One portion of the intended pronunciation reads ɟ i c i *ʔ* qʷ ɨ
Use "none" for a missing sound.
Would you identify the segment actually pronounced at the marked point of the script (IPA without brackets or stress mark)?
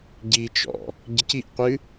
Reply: ʔ